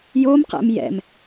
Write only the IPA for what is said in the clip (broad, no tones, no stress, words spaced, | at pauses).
jomqɛ̰m jɛ̰m